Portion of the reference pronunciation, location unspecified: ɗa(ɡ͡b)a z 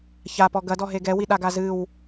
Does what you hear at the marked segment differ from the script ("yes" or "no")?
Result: yes